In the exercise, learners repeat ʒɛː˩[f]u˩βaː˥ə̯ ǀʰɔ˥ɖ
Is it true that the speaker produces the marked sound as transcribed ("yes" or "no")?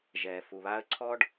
yes